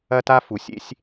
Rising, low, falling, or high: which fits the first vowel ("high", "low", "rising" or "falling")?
high